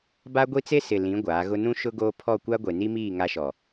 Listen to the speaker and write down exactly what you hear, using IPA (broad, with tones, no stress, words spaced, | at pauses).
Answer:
ba˦ɡʷi˦t͡se˦ sɪ˨lĩ˨˦ ɡʷaː˨˦ɣʊ˦ nũ˦ʃʊ˦ɡoː˦ pʰɔ˦˨kʷa˦ɡʷe˨ ni˦miː˦˨ ŋa˦ʃɔ˨